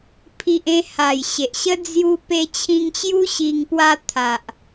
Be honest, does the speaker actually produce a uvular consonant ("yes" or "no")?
no